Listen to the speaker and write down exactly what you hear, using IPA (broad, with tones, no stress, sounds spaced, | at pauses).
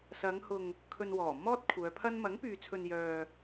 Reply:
s ɐ˨˧ ŋ h ʊ˨ ŋ | kʰ ɵ˧ n w ɔː˨˩ m ɔː˥ t̚ kʷʰ œː˨˧ pʰ ɐ˥ n m ɐ˨˥ ŋ p yː˨ t͡sʰ ɵ˨ n j œː˨